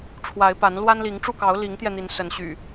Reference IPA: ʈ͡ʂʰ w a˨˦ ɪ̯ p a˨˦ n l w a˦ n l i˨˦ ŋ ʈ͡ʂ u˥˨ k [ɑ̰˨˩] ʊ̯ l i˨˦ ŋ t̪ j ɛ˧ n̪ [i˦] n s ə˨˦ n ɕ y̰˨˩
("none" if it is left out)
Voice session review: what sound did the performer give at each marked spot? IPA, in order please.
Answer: ɑ˨˦, i˨˦

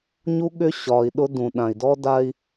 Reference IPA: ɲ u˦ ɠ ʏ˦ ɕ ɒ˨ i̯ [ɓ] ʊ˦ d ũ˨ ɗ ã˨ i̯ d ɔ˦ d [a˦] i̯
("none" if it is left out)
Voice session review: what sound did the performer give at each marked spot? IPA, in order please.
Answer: ɗ, a˦

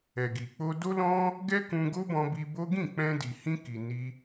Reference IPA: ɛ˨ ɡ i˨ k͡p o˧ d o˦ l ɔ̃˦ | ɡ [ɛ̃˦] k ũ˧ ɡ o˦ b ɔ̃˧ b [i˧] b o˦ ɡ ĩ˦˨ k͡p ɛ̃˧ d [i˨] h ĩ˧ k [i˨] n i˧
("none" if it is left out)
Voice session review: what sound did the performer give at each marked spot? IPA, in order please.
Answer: ɛ˦, i˧, i˨, i˨

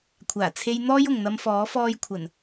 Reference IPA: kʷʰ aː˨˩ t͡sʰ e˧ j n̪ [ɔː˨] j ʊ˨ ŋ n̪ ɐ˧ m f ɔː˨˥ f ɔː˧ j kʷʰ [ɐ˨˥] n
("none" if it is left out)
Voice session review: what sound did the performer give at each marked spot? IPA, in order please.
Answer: ɔː˥, ɐ˨˩

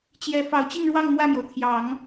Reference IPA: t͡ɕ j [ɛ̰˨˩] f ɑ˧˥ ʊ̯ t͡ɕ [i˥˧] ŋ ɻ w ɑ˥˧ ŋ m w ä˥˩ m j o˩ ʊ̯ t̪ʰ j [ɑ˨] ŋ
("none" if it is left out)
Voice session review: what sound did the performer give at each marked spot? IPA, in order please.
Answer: ɛ˧˥, i˥˧, ɑ˨˩˦

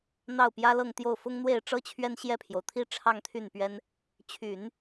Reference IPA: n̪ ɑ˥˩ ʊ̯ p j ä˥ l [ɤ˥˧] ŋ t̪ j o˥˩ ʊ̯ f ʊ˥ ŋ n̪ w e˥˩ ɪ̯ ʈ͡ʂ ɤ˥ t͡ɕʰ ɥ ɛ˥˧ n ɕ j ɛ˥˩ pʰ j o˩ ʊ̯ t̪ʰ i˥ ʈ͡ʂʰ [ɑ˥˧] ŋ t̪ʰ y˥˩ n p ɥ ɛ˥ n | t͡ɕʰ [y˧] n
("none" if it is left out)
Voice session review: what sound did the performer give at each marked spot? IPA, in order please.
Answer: ɤ˥˧, ɑ˥˧, y˨˩˦

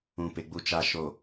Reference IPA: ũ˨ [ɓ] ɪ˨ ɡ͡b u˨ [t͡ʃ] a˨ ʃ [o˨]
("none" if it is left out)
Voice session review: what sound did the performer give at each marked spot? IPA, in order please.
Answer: p, t͡ʃ, o˨

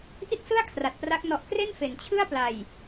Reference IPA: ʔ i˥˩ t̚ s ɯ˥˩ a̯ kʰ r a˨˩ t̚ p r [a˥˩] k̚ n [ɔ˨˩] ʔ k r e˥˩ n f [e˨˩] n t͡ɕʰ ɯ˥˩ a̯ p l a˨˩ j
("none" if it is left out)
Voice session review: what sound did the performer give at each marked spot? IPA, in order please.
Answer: a˦˥, ɔ˨˩, e˨˩

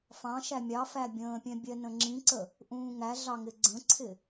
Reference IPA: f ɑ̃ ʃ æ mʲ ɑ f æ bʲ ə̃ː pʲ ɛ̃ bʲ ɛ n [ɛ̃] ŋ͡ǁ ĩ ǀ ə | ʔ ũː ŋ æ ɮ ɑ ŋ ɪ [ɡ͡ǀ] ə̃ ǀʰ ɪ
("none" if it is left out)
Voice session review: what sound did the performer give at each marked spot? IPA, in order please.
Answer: ə̃, ɡ͡ǀ

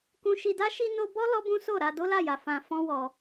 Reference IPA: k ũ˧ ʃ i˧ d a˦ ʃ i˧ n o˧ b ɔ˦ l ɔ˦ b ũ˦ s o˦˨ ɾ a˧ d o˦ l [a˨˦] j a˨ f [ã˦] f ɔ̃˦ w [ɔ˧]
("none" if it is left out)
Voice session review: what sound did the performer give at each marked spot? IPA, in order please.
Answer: a˦˨, ã˧, ɔ˧

